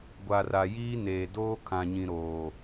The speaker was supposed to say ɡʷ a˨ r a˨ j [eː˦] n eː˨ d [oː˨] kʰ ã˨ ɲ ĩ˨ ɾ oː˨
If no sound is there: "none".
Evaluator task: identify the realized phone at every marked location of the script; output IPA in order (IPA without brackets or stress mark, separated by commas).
iː˦, oː˦